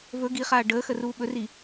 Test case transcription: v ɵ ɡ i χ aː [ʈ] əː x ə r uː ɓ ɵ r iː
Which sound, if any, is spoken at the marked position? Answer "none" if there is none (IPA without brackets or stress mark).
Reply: ɖ